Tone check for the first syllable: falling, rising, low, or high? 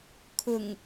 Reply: low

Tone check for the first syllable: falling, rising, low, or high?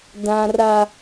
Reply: high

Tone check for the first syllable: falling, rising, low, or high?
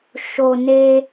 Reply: low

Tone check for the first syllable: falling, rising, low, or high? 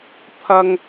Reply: high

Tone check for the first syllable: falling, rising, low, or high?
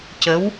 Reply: rising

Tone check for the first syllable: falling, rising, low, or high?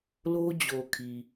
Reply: high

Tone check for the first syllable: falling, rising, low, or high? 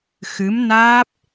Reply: rising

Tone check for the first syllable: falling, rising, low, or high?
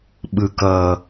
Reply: falling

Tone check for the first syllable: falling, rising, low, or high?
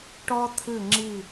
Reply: high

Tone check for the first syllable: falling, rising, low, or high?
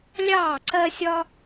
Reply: falling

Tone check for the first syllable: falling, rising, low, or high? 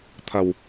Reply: low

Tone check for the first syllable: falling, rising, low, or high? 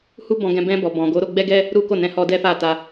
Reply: high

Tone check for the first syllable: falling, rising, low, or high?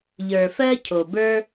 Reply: low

